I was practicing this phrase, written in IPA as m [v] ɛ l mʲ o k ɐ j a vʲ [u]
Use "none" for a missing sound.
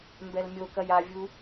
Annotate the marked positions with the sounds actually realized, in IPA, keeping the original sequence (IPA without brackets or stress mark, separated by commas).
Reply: b, u